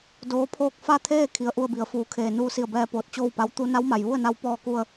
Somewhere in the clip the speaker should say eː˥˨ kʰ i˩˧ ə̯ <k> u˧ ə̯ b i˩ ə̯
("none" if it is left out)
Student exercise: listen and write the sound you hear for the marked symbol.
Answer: ʔ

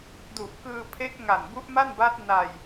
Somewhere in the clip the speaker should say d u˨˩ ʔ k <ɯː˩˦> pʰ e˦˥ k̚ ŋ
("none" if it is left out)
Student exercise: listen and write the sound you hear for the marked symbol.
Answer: ɯː˧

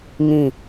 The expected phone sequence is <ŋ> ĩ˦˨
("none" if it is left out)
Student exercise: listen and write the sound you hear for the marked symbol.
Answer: ŋ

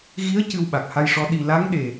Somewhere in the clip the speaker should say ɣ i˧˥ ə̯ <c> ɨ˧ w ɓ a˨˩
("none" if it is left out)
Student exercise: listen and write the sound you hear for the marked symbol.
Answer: c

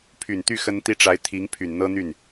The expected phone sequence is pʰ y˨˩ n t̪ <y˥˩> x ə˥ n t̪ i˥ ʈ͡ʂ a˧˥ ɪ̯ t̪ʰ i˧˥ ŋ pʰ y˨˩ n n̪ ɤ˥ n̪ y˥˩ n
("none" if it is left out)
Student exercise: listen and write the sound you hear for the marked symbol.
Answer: y˥˩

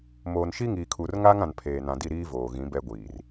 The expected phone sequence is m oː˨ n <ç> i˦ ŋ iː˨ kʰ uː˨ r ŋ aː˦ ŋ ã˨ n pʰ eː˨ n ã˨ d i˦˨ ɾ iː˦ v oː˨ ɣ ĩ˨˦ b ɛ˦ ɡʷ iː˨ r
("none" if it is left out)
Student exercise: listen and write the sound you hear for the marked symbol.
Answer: ʃ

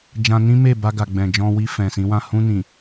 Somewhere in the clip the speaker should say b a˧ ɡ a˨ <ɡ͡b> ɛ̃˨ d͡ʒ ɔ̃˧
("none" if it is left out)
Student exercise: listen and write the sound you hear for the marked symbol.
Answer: ɡ͡b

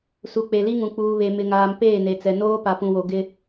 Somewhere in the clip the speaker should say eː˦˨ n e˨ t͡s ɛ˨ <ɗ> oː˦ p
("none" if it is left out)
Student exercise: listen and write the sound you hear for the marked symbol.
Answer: n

